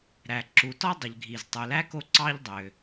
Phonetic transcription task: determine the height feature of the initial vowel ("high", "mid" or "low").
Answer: low